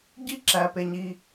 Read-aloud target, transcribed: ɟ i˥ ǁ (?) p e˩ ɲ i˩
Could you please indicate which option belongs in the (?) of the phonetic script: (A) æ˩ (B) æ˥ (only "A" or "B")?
A